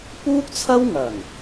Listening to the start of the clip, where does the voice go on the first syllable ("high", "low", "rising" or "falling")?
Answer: high